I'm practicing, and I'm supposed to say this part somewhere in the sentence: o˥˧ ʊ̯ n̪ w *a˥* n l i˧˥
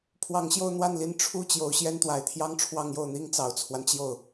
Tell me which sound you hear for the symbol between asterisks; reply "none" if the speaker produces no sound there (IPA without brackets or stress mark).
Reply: a˥˩